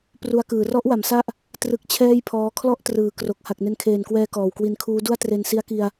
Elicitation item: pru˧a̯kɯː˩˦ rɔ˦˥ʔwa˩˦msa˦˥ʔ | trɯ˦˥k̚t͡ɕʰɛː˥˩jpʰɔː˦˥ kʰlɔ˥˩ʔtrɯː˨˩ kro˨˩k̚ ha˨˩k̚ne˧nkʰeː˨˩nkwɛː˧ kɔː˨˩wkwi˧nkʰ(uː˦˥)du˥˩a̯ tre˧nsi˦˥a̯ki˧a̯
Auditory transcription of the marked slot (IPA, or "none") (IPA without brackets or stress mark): uː˦˥